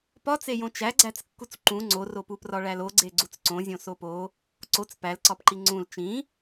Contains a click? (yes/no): yes